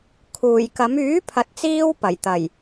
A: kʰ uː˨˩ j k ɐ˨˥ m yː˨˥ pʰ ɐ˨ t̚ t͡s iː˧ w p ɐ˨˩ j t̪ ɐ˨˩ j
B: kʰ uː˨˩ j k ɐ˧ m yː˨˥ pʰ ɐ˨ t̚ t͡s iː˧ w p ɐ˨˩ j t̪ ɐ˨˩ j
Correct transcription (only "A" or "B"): A